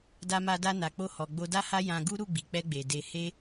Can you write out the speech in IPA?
da˧ma˧da˧ na˨k͡po˧hɔ˨ ɡ͡bo˧da˦ha˦ jã˧ɡu˦ ɾu˦˨ɡ͡bi˨k͡pɛ˧ɡ͡be˨ de˧he˦

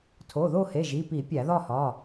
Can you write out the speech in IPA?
tʰo˩˧˩ðo˥˧he˩˧˩ ʒi˩˧˩pi˧˩˧ pʲæ˧˩˧ðɒ˥˧hɒ˩˧˩

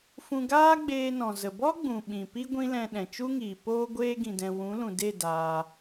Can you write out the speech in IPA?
fũ˧ɡaː˦ɡ͡beː˧ nɔ̃˨zə˨ bɔ˦ɡ͡bũ˨ ɓĩ˨pi˦ ɡʷĩ˦lɛ̃˧ ɗɛ̃˨t͡ʃu˦ŋiː˨poː˦ ɡʷeː˦ɡĩ˧dɛ̃˧ wũ˨˦lũ˨de˦˨ daː˧

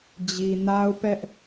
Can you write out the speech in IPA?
d͡ʑi˨na˦ʊ̯pɛ˦ʔ

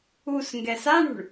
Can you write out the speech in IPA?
us ŋɡɛsaɳṳɳ

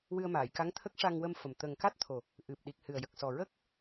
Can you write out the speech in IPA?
wɨ˧ə̯maː˨˩˨jka˧˥ŋ t̪ʰə˦˥k̚ ʂa˧ŋwə˧mfə˨˩m t̪ə˨˩ŋka˦˥t̚ t̪ʰo˨˩ | ʔɨ˨˩p̚ ɗi˨˩k̚hɨ˨˩ə̯jə˨˩k̚ sɔ˨˩ɹə˦˥k̚

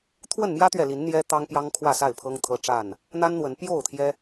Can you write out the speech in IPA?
t̪ʰwə˥˨nmjä˦t̪ɥɛ˨li˨˦n n̪jɛ˦ t̪ɑ˦ŋpjɑ˦ŋ kʰwä˥˨sa˥˨ɪ̯pʰɤ˦ŋ t̪ʰɤ˦ʈ͡ʂa˥˨n | n̪a˦nn̪wə˨˦n pjo˥˨ʊ̯t̪ʰjɛ˦

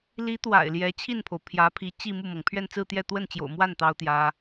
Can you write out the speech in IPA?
li˧˥t̪wa̰˨˩ɪ̯ ljɛ˧˥ t͡ɕʰi˥˩npʰo˩ʊ̯ pʰjä˧˥ pʰi˧˥ t͡ɕi˥˧mu˥˩mɤ˩ŋ pʰɥɛ˥˧nt͡sɹ̩˥˧t̪jɛ˥˧ t̪wə˥˩nt͡ɕjo̰˨˩ʊ̯mwa˥˩n t̪ɑ˥ʊ̯t̪jä˥

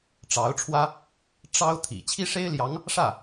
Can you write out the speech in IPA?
ʈ͡ʂɑ˧˥ʊ̯ʈ͡ʂʰwä˥ | ʈ͡ʂɑ˥ʊ̯ t̪ʰḭ˨˩ t͡ɕʰi˥ʂe˥ɪ̯ljɑ˧˥ŋ | ʂä˥˩

